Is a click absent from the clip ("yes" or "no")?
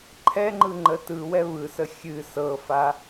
no